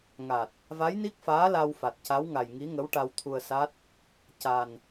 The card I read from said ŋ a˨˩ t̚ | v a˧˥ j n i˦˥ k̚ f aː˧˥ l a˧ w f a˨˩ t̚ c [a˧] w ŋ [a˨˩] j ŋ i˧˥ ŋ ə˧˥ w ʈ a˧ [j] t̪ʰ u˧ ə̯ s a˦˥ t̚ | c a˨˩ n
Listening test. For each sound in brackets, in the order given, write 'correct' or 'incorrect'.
incorrect: a˧˥, correct, incorrect: w

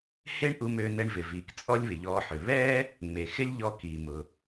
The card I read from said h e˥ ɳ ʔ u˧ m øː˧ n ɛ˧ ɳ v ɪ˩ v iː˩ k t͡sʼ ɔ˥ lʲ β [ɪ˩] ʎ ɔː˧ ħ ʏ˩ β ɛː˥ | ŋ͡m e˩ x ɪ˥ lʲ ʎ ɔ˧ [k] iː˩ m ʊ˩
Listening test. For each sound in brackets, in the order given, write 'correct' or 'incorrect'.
correct, correct

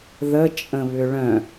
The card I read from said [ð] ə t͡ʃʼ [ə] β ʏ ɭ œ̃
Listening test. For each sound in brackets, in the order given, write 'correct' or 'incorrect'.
correct, incorrect: ə̃

